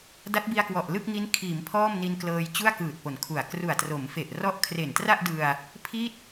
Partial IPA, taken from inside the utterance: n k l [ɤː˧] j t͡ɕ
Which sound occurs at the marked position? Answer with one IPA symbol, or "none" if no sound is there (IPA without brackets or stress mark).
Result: ɤː˧